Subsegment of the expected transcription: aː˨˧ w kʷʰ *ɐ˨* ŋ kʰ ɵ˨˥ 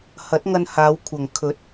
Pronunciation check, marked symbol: correct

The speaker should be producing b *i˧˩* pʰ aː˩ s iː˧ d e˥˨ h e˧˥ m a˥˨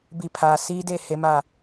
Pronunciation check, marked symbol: correct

